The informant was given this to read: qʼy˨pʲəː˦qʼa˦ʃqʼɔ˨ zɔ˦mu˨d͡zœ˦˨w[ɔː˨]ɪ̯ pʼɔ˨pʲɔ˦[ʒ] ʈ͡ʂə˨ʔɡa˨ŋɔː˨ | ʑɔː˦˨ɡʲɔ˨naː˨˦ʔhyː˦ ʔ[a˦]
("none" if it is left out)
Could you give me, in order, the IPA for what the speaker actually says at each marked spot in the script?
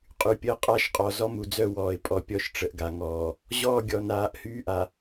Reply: ɔː˨, ʃ, a˨

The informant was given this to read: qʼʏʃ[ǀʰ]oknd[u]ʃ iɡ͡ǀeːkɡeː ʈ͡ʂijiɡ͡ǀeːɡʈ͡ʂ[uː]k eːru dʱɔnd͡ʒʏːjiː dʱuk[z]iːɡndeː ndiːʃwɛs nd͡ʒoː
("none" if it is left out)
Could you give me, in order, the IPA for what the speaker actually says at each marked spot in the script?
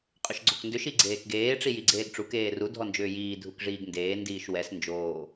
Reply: ɡ͡ǀ, ʏ, u, ʐ

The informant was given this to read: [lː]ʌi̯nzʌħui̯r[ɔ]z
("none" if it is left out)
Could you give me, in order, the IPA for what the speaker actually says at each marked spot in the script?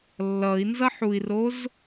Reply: lː, o

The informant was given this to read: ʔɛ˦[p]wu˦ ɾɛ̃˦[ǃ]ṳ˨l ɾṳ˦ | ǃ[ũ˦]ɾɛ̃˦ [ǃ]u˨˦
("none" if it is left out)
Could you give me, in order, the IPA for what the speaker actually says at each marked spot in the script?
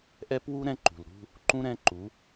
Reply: p, ǃ, ũ˦, ǃ

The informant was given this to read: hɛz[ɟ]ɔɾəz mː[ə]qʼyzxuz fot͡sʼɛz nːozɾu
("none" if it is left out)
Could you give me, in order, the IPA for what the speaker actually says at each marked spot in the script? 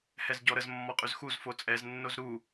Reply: ɟ, ɔ

